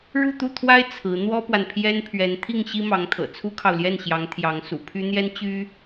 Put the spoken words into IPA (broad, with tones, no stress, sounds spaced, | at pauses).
ɻ u˥˧ t̪ u˥˩ t̪ʰ w a˥ ɪ̯ t͡sʰ ɹ̩˧˥ n̪ w ɔ˥ p w a˨ n pʰ j ɛ˥ n pʰ ɥ ɛ˧˥ n t̪ʰ i˥˩ ŋ ɕ i˥ m ɑ˧˥ ŋ t̪ʰ ɤ̰˨˩ t͡sʰ u˥ kʰ ɑ˨ ʊ̯ l j ɛ˥˩ n ɕ j ɑ˧˥ ŋ t̪ʰ j ɑ˧˥ ŋ s ṵ˨˩ pʰ y˥ n̪ j ɛ˥ n t͡ɕ y˥